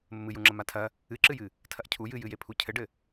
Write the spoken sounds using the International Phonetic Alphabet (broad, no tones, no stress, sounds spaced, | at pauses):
m ɘ m ɨ j u ŋ͡ǁ ɐ m a tʰ ɐ | ɨ ǁ ɨ j ɨ | tʰ ɐ ʔ cʰ u j ɨ j ɨ j e pʰ u cʰ ɘ ɖ ɘ